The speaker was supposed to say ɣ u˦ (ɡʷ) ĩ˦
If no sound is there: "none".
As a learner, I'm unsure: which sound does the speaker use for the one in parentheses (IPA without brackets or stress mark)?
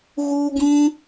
ɡ